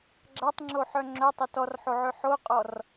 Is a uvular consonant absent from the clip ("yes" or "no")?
no